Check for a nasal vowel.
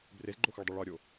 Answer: absent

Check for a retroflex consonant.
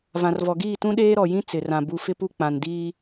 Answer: absent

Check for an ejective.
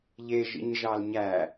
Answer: absent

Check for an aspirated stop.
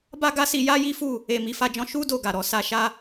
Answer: absent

